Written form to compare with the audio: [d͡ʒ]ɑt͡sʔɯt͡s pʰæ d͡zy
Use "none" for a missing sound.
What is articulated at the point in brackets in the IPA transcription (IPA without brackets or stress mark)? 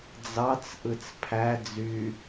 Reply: d͡z